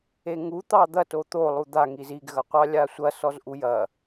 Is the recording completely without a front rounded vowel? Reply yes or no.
yes